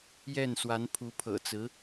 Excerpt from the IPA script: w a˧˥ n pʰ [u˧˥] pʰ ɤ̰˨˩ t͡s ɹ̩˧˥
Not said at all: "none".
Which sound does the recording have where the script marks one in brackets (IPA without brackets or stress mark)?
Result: u˧˥